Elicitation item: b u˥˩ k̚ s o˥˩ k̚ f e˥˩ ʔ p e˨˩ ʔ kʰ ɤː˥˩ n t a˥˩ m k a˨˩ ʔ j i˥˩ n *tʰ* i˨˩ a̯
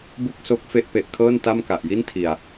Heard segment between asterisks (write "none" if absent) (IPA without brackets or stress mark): tʰ